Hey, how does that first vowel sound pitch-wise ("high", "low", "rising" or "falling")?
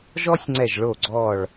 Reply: high